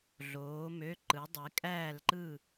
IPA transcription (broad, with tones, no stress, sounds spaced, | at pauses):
ɮ oː˩˧ m ø˩˧˩ ǃ ɯ˩˧ dˤ e˩˧ kʼ æː˧˩ l ǃ ɯ˧˩